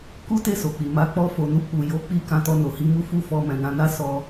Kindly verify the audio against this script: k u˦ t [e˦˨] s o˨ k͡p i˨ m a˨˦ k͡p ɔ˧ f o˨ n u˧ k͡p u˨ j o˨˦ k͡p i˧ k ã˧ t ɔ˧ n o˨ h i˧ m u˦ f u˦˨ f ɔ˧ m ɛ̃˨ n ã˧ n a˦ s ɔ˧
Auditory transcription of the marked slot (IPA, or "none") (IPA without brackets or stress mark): e˦˨